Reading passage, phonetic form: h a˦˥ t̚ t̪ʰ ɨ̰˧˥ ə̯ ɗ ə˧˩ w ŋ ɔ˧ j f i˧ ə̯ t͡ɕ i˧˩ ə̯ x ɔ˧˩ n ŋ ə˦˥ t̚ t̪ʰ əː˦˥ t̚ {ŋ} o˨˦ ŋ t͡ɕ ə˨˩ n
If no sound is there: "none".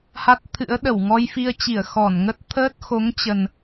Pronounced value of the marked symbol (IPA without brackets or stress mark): x